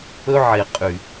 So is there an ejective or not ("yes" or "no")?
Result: yes